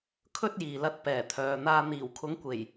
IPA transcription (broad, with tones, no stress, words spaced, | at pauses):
kʰɵ˥t̚jiː˨lɐ˧t̚ pɛː˨˩t̪ʰœː˨n̪aː˧ n̪iː˨˩wkʰʊ˨˥ŋkʷe˨˩j